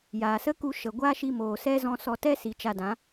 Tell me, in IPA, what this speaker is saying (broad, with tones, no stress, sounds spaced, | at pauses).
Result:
j a˨ s ə˦ k u˧ ʃ ə˨ ɡʷ a˦ ʃ i˧ m oː˨ s ɛ˦ z ɔ̃˧ s ɔ˧ t ɛ˦ s i˨ t͡ʃ a˧ d ã˨˦